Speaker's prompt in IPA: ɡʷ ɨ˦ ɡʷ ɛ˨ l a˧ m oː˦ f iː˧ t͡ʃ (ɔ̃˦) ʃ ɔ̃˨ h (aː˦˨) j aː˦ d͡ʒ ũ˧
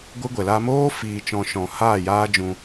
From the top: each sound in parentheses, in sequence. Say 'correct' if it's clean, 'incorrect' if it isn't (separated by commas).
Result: incorrect, correct